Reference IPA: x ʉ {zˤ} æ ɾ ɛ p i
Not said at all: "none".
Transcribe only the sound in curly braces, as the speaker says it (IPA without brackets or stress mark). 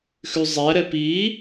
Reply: zˤ